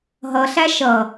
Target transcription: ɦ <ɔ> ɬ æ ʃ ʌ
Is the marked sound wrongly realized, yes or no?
yes